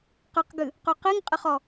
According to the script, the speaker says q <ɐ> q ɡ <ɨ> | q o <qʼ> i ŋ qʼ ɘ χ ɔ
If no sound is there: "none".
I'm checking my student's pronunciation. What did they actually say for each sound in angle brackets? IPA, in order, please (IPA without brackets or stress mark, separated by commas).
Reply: ɐ, ɨ, q